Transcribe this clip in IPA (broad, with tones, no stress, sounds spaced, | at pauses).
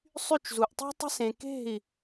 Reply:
sˤ y˥˧ t͡ʃ z u˧ ʔ tˤ e̤˥ tˤ e̤˥ s ẽ˧ k e̤˥˧ i̯